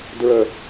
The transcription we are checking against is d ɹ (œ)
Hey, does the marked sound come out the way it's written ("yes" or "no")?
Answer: no